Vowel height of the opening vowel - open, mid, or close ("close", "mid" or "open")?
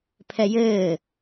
mid